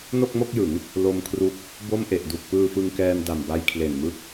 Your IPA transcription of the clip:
n o˥˩ k̚ m o˥˩ k̚ j ɯ˩˦ ŋ | l o˧ m kʰ r u˦˥ k̚ | b o˥˩ m ʔ e˨˩ ʔ d u˨˩ k̚ p ɯː˧ f ɯ˧ ŋ k ɛː˧ m d a˨˩ m b a˧ j kʰ l e˨˩ n m ɯ˦˥ k̚

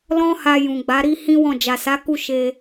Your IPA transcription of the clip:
l ɔ̃˦ h a˧ j ũ˨ ɡ͡b a˨˦ ɾ i˦ h ĩ˦ w ɔ̃˦˨ d͡ʒ a˨ s a˨˦ k u˦˨ ʃ e˧

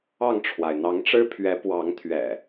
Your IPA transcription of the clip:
ɑ˥˨ ŋ ʈ͡ʂʰ w a˩ ɪ̯ n̪ ɑ˨˦ ŋ ʈ͡ʂ ɻ̩˦ pʰ ɥ ɛ˨˦ p w ɑ˨˦ ŋ t̪ʰ ɥ ɛ̰˨˩

